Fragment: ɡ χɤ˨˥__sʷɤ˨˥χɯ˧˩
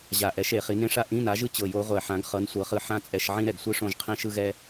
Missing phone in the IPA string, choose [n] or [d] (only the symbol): n